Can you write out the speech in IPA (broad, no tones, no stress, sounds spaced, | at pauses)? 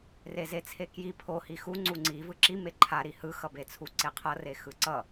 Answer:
r e z e t͡sʰ e k j i pʰ o h i x u ŋ͡ǀ u ŋ͡ǀ i v ɯ ǁ i m e ǃʰ a ɾ i h ɯ x ʌ b e t͡sʰ u ǀ e qʰ ʌ r e x ɯ ǀ ʌ